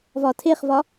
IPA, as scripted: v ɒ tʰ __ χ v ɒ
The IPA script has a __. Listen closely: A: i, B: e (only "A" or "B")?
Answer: B